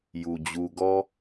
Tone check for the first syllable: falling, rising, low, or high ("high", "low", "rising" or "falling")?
low